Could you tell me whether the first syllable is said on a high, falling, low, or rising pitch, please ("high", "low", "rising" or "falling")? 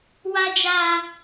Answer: high